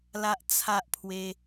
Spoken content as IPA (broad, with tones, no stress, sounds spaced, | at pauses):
l a˦ ʔ t͡sʰ a˦ ʔ pʰ w e˦